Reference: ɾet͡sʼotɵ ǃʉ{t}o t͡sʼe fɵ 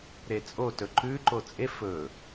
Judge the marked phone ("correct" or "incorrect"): incorrect